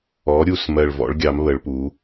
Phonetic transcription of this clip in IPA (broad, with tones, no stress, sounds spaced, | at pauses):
ɔ˩˧ ɾʲ u˨˩ s m ɜ˨˩ ɭ v ɔ̰˩˧ ɭ ɡʲ ɑ˩˧ m β ə˩˧ ɭ p u˩˧